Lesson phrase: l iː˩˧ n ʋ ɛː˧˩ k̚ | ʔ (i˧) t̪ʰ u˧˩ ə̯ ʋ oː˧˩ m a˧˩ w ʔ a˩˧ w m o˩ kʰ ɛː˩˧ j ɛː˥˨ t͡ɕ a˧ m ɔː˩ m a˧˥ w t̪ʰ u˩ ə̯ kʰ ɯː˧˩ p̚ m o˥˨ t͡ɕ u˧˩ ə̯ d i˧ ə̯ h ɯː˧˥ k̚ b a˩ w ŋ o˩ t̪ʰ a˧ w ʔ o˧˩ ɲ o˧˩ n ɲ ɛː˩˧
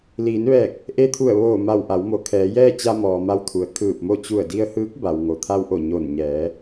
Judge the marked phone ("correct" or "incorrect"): incorrect